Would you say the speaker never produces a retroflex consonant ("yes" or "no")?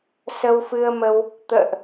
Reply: yes